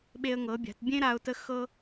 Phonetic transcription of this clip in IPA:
ɓ e˧ ə̯ ŋ ɤ˩˧ bʲ a̤˩˧ t bʲ ẽ˥ ɾ a˧ ʊ̯ t ə˧˥ x ɤ˧

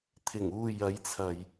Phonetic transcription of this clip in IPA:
t̪ʰ ɪ˨˩ ŋ uː˨ j ɐ˨˧ j t͡sʰ ɐ˨ j

